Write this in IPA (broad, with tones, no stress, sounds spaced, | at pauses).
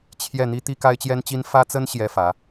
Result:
t͡ɕʰ j ɛ˥˩ n̪ i˥ t̪ i˥ k a˥ ɪ̯ t͡ɕ j ɛ˥ n t͡ɕ i˥ n f ä˥ t͡s ə˥ n ɕ j ɛ˥ f ä˧˥